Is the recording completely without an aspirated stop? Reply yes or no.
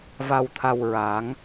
no